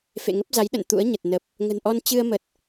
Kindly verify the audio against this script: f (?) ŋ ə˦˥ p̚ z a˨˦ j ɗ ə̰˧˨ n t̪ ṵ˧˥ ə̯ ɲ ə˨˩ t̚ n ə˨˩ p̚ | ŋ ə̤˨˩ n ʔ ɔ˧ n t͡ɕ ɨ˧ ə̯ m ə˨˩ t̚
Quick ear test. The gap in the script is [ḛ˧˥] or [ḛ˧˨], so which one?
ḛ˧˨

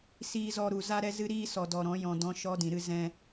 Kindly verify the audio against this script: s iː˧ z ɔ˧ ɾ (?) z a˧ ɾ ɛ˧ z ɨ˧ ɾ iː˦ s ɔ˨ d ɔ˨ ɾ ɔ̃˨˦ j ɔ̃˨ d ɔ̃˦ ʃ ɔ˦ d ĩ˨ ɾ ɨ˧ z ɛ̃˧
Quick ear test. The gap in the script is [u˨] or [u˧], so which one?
u˨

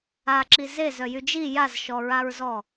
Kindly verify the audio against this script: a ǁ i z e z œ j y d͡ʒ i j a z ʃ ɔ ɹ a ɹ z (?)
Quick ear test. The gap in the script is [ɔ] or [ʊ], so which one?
ɔ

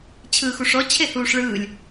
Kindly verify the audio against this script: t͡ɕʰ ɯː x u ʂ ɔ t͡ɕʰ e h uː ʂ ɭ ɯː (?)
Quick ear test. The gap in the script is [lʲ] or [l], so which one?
lʲ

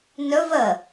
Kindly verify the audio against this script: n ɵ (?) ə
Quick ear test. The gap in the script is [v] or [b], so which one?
v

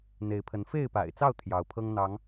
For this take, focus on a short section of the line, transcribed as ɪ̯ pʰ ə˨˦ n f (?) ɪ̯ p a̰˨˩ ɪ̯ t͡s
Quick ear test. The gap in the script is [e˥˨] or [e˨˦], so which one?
e˥˨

